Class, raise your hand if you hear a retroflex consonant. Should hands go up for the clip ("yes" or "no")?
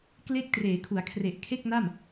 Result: no